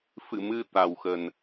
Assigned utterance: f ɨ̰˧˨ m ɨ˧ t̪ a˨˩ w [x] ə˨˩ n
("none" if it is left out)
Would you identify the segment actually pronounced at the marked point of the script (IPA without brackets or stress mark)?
x